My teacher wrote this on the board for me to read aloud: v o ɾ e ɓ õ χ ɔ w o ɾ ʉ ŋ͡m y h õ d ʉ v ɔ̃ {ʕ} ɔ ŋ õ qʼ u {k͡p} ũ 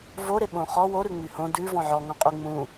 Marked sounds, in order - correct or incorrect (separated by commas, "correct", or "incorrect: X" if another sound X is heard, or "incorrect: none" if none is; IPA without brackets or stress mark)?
correct, incorrect: ŋ͡m